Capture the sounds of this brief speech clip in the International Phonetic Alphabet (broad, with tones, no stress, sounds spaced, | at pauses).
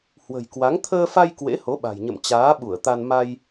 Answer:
h w ə̤˨˩ j k w a˨˦ ŋ t̪ʰ əː˧ f a˧ j k w ḛ˧˥ h o˨˦ ɓ a̤˨˩ j ɲ ə̰˧˨ m t͡ɕ aː˨˦ ɓ u˧˩ ə̯ t̪ a˧ n m a˧ j